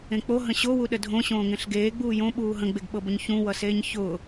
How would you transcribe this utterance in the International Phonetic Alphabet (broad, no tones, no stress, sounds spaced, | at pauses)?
ẽ k͡p o ɦ ə̃ ɕ o w u ɗ ə dʱ õ ɕ õː ŋ ẽ ɬ ɡ eː ɡ͡b uː j õ ɓ uː ɦ ə̃ ɡ͡b e ɡ ɓ ɤ b ʊ ɲ ç ũ w ʌ s eː ɲ ç ʊː